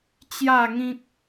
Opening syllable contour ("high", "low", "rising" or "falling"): falling